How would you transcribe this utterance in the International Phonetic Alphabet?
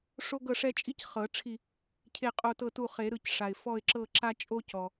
ʂ o˦ ɡ ɤ˦˨ ʂ ɛ˦ t͡ʃʼ i˦ c χ ɤ˨˩˦ ʈ͡ʂʰ i˦˨ | cʰ e˦˨ qʼ o˦˨ t ɤ˦˨ t u˦˨ χ e˨˩˦ ɾ ɯ˦˨ c ʂ a˩ ɪ̯ f ɔ˦˨ ɪ̯ ǁ ɤ˦˨ ǁ a˦ t͡ʃʼ o˦ c ɔ˩

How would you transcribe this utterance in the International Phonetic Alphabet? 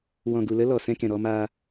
w ɔ̃˨ ɡ u˨ l ə˧ l ɔ˨ s ɛ̃˧ k ɛ̃˨ ɾ ɔ˧ m aː˧

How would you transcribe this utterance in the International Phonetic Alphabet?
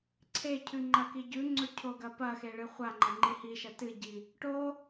ǀʰ e cʰ ʉ ŋ͡ǃ ɐ k i ɟ ʉ ŋ͡ǀ ɵ cʰ o ɡ ɐ p ɐ x e ɭ ɨ χʷ a ŋ͡ǃ ɐ ŋ͡ǃ i h i ʃ ɐ t ɨ ɟ i | ʈ o

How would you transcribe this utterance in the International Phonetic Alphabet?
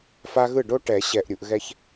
f a˦ ɣ ɯ˥˩ ɖ o˦ ʈ ɛ˨˩˦ ɕ ɛ˨ ʔ ɾʲ u˨ ʔ ɣ ɛ˦ ç

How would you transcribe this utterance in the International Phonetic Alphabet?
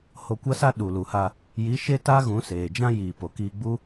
h o˧ kʷ a˦ s a˦ ɗ u˨ l u˨ h a˧ | j i˨˦ ʃ e˦ t a˦ ɣ ũ˨˦ s eː˨ d͡ʒ ã˦ j iː˨ p o˨ k iː˧ ɡ͡b u˦

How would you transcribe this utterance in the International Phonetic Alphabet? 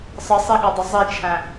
sˤ ə sˤ e ɠ ɒ dˤ ə zˤ e t͡ʃʰ æ̃

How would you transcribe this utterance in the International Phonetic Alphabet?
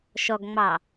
ʃ ɔ ɡ ŋ͡m ɑ

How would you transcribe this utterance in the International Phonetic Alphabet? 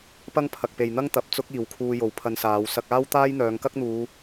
p ɐ˥ ŋ pʰ ɐ˨ k̚ p e˨ j n̪ ɐ˥ ŋ t̪ ɐ˨ p̚ t͡s ʊ˥ k̚ iː˨ w kʰ uː˧ j o˨ w pʰ ɐ˧ n s aː˨˧ w s ɐ˧ k̚ aː˥ w t̪ aː˥ j n̪ œː˨˧ ŋ k ɐ˥ k̚ n̪ uː˨˧

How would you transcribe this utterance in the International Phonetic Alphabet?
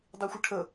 dˤ i xʷ ə ʈʰ ə

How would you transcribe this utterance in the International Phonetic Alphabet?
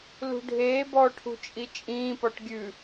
l ṳ ɖʱ eː b ɔ ʈʰ ṳ t͡ʃʼ i t͡ʃʼ ĩː p ɔ ʈ ɡʲ ʉ

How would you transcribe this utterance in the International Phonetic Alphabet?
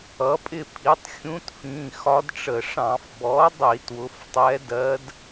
ʌ˩˥ pʼ ɪ˦˨ pʰ i˩˥ tˤ xʲ ũ˧˥ t f ĩ˩˧˩ x ɒ˧˥ d ʈ͡ʂ ə˧˩˧ ʂ ɑ̃˧˩˧ f b ɔ˩˥ dˤ i˧˩˧ t w ʊ˩˥ f tˤ ɛ˧˥ d ɜ˧˥ d

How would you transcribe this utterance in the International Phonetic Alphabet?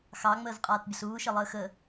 x ɑ ŋ͡m əː z qʼ aː t bʲ ə ɬ uː ʃ ə lˠ əː x ə

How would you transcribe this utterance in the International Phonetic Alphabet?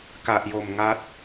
k a˨˩ ʔ j o˨˩ m ŋ a˦˥ t̚

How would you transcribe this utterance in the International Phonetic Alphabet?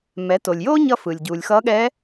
m ɛ˩˧ t o˩ lʲ j oː˥ ɲ ʌ˧ f ɯ˩ lʲ ɟ uː˩ lʲ x ʌː˧˥ ɠ ɛ˧˥

